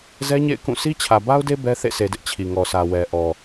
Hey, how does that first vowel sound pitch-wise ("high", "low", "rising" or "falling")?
high